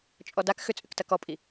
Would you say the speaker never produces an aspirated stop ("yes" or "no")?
yes